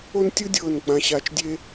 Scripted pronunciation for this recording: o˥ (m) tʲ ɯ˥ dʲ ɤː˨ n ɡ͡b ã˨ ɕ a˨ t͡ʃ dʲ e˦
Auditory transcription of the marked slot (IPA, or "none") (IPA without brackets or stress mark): n